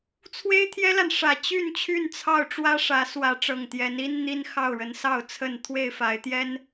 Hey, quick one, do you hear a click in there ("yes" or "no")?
no